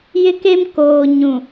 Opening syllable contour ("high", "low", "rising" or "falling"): high